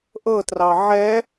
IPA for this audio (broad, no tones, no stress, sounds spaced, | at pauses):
ʔ ɤ t r ɑ ʕ ɛ